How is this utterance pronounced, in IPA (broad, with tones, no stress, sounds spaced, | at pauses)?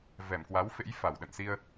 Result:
v ɛ˧˩ m k w a˨˦ w f ḛ˧˥ j f a˧˩ w ɗ ə̰˧˨ n s i˧ ə̯